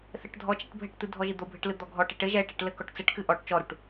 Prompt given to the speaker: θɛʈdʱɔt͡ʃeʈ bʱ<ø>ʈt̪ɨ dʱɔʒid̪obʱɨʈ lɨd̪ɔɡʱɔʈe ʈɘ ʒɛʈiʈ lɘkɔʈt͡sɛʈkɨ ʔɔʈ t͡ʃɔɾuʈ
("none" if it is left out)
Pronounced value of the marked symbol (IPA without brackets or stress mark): ɘ